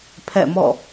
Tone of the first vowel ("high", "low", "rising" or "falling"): falling